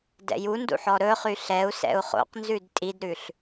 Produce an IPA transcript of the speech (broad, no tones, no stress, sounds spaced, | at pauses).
d ɛ̰ j u n d ṵ ħ ɔ ɾ ɵ χ y ɬ ɛ u̯ s ɛ̰ u̯ χ o̰ q n z ʉ d tʼ i d ɾ ʉ ɬ